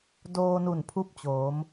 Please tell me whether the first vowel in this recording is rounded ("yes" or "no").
yes